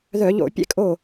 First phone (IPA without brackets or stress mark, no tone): ð